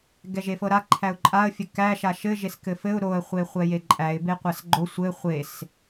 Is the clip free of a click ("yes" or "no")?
no